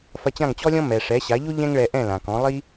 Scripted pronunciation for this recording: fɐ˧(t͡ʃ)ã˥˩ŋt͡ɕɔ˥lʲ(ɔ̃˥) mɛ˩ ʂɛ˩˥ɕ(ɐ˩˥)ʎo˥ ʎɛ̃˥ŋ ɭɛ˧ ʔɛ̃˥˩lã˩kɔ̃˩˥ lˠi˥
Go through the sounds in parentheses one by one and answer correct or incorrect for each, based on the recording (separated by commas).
incorrect, correct, incorrect